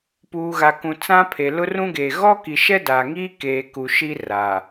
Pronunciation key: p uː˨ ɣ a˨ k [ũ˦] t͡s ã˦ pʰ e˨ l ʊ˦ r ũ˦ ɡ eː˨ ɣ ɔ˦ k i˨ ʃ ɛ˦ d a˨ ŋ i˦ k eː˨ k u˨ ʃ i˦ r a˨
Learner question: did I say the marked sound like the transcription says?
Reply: no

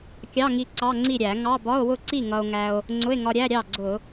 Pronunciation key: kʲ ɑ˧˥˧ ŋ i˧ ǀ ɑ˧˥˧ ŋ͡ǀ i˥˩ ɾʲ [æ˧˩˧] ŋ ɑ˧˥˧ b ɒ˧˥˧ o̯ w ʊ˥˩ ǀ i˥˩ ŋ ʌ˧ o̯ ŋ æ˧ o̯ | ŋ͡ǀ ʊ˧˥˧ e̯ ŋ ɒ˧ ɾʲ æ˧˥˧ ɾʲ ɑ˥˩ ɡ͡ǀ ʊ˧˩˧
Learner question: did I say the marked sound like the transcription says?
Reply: yes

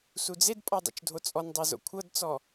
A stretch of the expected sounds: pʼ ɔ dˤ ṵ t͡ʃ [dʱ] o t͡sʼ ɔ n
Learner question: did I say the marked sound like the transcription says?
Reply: yes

